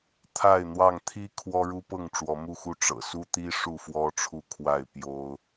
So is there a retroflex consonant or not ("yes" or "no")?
yes